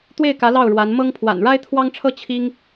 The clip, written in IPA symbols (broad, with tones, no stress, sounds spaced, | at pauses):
t̪ w e˥˩ ɪ̯ k ä˧˥ l ɑ˥˩ ʊ̯ ɻ w a˧˥ n m ɤ˥ ŋ pʰ w a̰˨˩ n ɻ a˥ ɪ̯ t̪ʰ w ɑ˥ ŋ ʈ͡ʂʰ ɤ˥ t͡ɕʰ i˥ ŋ